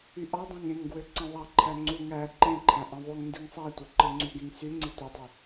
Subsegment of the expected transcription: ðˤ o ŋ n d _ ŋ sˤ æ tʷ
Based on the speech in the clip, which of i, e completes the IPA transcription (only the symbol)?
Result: i